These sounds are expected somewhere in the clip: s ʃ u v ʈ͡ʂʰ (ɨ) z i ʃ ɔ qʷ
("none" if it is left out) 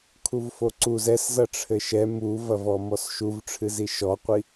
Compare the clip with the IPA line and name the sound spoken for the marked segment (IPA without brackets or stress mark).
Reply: ɨ